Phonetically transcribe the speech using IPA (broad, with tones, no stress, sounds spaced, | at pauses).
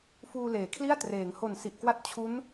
f uː˧ l eː˩˦ kʰ l i˥˩ a̯ t r eː˩˦ ŋ h o˨˩ n s i˨˩ ʔ k w a˥˩ t̚ t͡ɕʰ u˦˥ n